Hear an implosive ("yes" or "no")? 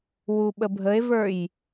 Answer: yes